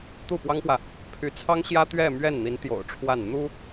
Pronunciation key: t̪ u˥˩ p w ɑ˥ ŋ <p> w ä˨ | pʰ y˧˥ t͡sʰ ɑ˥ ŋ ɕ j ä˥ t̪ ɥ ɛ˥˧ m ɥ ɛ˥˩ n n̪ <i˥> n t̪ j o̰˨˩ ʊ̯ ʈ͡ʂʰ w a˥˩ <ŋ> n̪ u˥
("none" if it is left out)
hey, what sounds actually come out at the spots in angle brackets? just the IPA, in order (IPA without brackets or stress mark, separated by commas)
p, i˧˥, n